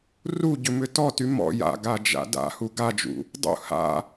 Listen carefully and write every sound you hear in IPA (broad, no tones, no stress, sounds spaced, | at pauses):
r u ɟ ʏ m ʏ t ɔ t y m ɔ̰ j a̰ ɡ a d͡ʒ a̰ d a̰ h u ɡ a d͡ʒ ṵ | dˤ ṵ h a̰